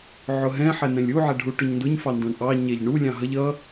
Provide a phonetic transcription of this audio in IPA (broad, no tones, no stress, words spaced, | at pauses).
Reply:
ʕʊɦɛ̃ ħɛnɛ̃lʲu ʕɛɖʱuʈʊɲndʊɲ fɑndɔ̃ɳʔɑ ɲɛʎɳu lʲɑ̃ɦʌʎ ʌ